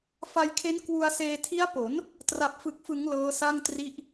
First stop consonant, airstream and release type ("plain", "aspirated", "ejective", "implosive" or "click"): aspirated